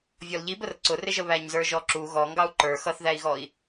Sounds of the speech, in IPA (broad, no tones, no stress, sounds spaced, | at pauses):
vʲ ɔ l ʎ i b ə r ǀ ʊ r ɪ ʒ ə β æ ɲ z ə˞ ʒ ɔ ǁ u ɣ ɔ ŋ ɡ ɑ u̯ ǃ ə˞ x ʌ θ ð æ i̯ ɣ ɔ i̯